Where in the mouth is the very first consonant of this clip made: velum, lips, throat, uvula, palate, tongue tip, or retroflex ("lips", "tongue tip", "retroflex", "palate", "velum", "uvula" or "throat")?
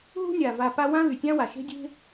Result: throat